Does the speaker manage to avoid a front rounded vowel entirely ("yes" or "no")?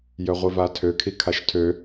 no